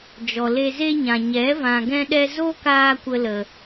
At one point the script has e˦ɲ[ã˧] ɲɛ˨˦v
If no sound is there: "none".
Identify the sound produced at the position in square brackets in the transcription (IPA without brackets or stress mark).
ã˨